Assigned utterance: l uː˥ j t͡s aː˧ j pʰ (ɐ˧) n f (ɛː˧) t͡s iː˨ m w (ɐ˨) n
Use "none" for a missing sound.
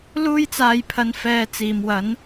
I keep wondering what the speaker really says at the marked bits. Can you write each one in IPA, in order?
ɐ˧, ɛː˧, ɐ˨˥

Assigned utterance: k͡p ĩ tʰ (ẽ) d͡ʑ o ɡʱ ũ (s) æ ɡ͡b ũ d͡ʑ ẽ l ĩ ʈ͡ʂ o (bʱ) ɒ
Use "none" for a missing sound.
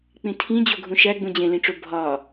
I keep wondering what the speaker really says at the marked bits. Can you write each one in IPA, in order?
ĩ, ʃ, bʱ

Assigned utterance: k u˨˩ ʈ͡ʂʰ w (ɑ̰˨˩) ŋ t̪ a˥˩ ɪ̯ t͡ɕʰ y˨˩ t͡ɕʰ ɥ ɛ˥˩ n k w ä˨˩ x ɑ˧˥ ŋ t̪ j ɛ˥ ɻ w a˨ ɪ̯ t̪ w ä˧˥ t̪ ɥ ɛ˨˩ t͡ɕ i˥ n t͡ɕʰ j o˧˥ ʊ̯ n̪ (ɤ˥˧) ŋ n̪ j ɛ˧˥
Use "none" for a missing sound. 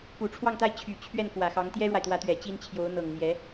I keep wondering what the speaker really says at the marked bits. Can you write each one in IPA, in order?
ɑ˥˧, ɤ˨˩

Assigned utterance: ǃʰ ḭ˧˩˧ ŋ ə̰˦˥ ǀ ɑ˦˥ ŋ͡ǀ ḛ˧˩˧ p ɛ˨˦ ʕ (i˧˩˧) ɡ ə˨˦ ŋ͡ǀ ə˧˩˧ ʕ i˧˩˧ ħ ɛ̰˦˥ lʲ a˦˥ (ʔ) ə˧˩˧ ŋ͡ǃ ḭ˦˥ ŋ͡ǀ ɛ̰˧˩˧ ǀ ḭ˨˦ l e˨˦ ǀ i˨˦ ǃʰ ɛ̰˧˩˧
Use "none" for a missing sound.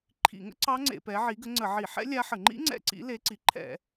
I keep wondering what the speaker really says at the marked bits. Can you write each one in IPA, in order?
i˨˦, ħ

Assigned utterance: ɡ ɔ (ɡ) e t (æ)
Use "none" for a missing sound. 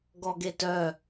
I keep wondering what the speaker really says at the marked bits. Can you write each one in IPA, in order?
ɡ, œ

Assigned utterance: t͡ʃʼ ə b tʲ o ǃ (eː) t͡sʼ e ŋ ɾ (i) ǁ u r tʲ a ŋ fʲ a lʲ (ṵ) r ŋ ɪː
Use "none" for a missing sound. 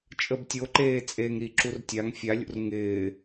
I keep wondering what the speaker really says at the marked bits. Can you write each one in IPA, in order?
eː, i, ṵ

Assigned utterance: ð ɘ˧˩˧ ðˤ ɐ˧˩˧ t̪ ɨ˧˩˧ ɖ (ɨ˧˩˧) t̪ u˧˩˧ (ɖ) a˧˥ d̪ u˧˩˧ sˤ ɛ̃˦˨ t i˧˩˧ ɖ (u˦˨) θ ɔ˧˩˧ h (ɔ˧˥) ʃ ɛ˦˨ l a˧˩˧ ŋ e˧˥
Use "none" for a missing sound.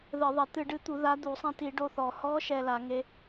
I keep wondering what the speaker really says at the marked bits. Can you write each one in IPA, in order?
ɨ˧˥, ð, o˦˨, ɔ˧˥

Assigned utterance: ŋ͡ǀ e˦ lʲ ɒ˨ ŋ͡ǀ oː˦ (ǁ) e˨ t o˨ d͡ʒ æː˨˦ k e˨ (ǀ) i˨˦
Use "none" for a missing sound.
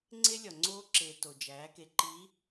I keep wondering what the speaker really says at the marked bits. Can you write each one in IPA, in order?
ǁ, ǃ

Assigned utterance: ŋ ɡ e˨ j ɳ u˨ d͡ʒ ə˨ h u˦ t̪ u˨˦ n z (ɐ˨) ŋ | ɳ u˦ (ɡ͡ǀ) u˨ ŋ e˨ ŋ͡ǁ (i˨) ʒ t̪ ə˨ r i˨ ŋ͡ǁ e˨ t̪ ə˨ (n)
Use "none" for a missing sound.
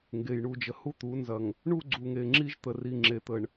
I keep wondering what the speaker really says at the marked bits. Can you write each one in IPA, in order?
ɐ˨, ɡ͡ǀ, i˦, ɳ

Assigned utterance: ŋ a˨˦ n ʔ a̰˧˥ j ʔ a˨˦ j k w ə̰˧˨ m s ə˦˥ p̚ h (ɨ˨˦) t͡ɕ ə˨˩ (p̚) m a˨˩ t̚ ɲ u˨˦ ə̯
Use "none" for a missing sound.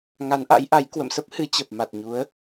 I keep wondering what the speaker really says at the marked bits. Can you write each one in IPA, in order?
ɨ˨˦, p̚

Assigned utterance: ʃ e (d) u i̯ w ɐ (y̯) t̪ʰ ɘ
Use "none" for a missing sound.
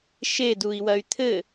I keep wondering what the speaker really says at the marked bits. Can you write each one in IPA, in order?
d, y̯

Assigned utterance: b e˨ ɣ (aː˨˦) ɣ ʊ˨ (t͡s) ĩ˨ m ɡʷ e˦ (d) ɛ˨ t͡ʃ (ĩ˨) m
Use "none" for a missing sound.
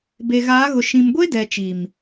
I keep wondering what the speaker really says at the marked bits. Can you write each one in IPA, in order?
aː˨˦, ʃ, d, i˨

